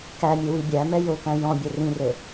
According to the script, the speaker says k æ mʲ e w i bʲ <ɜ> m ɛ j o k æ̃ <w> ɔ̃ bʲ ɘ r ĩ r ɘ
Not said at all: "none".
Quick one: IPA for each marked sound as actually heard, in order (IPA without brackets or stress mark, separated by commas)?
æ, j